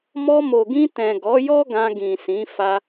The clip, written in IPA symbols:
m ɔ˧ m o˨ ɡ ĩ˧ t ɛ̃˨ ɡ ɔ˨˦ j ɔ˦ ɡ ã˧ ɡ ĩ˨ s ĩ˨˦ f a˧

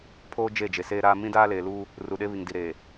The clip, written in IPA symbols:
pʰ oː˦ d͡ʒ e˦˨ d͡ʒ e˨ s eː˦ ɾ aː˦ m ĩ˦ d aː˦ l eː˨ l uː˦ | r u˨ ɗ e˦ β i˨ ŋ d i˨ ɾ eː˨

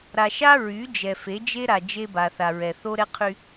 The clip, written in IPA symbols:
ɾ a˨ ʃ a˦ ɹ y˨˦ d͡ʒ ɛ˨ f e˨˦ d͡ʒ e˦ ɾ a˨ d͡ʒ e˦ b a˨ θ a˨ ɹ ɛ˨ θ o˦ ɾ ɛ˦ qʰ y˦

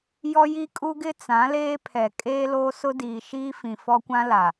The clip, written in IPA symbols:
j ɔ˦ j i˦ kʼ u˦ ɡ ɪ˦ t͡s ã˨˦ l eː˦ pʰ ɛ˨ kʼ eː˦ l oː˦ s ʊ˦ d iː˨ ʃ iː˦ f ĩ˨ f ɔ˦ kʷ ã˦ l a˨

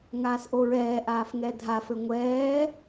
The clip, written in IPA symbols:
ŋ aː s ʔ o ɹ ɛː ʔ aː f ŋ ɛ dʱ a f ɘ ŋʷ ɛː

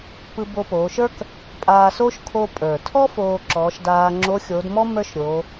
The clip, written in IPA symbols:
p ɯ˧ b o˧ p oː˩˧ ʃ ə˞˥ k | pʼ aː˧ s oː˥ ʃ kʰ o˧ pʼ ə˞˩ tʰ ɔ˥ f oː˧ ǁ ɔː˩˧ ʃ d aː˧ ŋ͡ǁ oː˧˥ xʲ oː˩˧ d m ɔ˥ m ə˞˥ ʃ ɾʲ oː˩˧

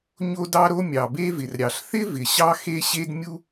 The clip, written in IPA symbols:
ɲ o˥ d ɑ˥ ɾ o˥ mʲ ɑ˩ b e˥ v ɪ˩ r ɾʲ ɑ˩ ɬ θ ɪ˥ v ɪ˩ ɕ ɑ˥ x e˥ ɕ e˥ d mʲ u˥

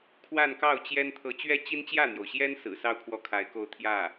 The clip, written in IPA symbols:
kʰ w a˥˧ n k ɑ˥˩ ʊ̯ t͡ɕ j ɛ˥ n t̪ʰ ɤ˧˥ t͡ɕ ɥ ɛ˥ t͡ɕ i˥ n t͡ɕ j ä˥˩ n̪ j o˩ ʊ̯ ɕ j ɛ˥ n s ɹ̩˨˩ s ɑ˥˧ ʊ̯ kʰ w ɔ˥˩ kʰ a˧˥ ɪ̯ k o˥˧ ʊ̯ t̪ʰ j ä˥˩

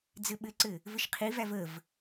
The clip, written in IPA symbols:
d͡z ɘ ɓ ɘ ǀ ɘ | v ɘ ʃ qʰ i v æ v ə v

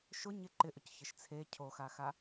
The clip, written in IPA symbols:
ʃ ʊ ɲ ɪ ǃ ɪ ʔ ʊ c ç ɪ ʃ t͡sʰ e cʰ o x a x a

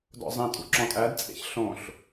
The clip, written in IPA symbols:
d ɔ̰ zˤ ĩ tʼ ṵ ǁ ɔ̃ tʼ æ d t͡sʼ ḛ ç ɬ õ ɬ

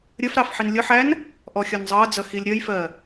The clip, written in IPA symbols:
ɾʲ ə f ɾ ɑ f ħ i n lʲ ʊ ħ æ n | ʔ ɔ xʲ ɒ n zˤ ʌː d͡z ʌ x i lʲ ɾʲ ʌ j f ɜ

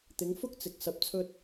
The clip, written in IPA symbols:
t̪ ɪ˨˧ ŋ f ʊ˥ k̚ t͡s ɪ˨ k̚ s ɐ˧ p̚ t͡sʰ ɵ˧ t̚

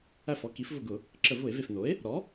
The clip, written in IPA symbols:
æ˥˩ f ɔ˩˥ k i˩˥ f v ʊ˧˩ ɡ ʊ˧˩˧ | ǁ ə˧˩˧ v ʊ˧˩˧ e̯ v e˧˩ f n o˩˥ e̯ | ɾ ɔ˩˥

